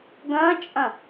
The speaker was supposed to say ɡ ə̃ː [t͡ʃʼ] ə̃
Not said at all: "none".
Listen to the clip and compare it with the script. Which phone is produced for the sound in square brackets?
t͡ʃʼ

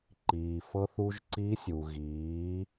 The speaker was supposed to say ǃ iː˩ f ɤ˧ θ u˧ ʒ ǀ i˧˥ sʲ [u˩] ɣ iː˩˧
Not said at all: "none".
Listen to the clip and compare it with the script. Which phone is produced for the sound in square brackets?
u˩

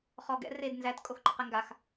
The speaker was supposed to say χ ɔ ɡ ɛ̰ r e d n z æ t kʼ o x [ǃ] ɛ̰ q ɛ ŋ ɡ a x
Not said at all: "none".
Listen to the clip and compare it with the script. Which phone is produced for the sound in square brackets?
ǃ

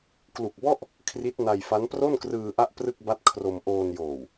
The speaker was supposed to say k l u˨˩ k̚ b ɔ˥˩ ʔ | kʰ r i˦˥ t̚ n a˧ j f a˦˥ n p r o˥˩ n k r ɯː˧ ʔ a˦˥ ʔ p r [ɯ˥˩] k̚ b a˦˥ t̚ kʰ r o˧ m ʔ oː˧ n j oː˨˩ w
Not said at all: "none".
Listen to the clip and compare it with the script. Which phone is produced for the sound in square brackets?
ɯ˥˩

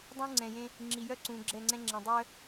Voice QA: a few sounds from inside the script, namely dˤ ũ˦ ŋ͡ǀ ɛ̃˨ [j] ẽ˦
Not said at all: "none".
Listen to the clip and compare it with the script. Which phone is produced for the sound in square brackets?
j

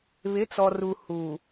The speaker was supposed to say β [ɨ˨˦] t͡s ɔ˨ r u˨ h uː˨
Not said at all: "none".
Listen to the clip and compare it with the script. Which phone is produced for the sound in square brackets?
ɪ˨˦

